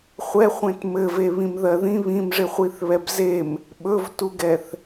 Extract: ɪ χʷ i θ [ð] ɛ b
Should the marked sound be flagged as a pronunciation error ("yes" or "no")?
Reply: yes